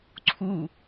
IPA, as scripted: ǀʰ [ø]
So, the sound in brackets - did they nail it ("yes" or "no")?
no